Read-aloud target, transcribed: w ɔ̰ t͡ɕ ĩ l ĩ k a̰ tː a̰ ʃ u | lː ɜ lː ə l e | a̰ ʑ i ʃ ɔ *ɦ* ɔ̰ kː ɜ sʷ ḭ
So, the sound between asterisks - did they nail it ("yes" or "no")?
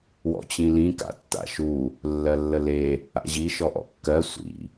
no